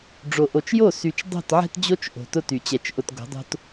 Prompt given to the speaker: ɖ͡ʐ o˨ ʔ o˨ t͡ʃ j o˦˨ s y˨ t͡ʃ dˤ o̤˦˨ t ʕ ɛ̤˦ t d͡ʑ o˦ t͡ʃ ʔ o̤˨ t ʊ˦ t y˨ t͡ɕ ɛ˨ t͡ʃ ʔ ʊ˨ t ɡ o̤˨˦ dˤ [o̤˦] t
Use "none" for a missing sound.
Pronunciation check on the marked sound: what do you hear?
o̤˦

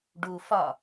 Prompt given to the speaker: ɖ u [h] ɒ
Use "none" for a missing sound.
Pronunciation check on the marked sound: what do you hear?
f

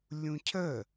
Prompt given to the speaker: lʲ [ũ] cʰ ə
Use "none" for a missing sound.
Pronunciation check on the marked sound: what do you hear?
ũ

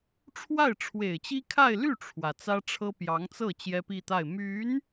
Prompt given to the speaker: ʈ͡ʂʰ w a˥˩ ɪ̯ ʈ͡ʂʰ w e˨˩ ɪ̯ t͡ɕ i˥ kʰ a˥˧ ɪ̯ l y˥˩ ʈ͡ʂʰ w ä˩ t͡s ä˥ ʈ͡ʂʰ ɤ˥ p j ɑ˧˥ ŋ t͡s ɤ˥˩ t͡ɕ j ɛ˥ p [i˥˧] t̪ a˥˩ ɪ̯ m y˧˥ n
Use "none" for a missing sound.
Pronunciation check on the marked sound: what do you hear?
i˥˧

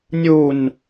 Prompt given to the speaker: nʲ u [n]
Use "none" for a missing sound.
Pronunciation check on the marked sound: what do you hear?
n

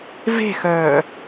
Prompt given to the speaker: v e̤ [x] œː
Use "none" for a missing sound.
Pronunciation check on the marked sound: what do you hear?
x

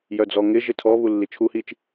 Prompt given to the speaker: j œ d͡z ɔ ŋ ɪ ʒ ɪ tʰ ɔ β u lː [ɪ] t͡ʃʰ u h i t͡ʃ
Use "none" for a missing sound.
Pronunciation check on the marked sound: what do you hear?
i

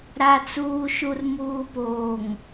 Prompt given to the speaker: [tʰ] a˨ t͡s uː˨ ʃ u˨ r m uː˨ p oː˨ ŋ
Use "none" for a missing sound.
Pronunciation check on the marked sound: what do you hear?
ɾ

